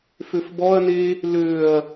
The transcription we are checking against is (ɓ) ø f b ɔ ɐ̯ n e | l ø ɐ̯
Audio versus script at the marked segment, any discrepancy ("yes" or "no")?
yes